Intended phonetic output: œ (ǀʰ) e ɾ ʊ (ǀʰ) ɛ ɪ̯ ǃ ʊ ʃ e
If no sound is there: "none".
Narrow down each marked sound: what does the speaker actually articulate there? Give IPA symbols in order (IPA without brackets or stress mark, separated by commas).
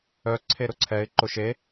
ǀʰ, ǀʰ